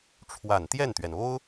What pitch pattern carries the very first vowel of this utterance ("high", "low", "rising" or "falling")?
low